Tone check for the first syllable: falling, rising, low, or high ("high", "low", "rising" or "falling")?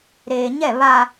low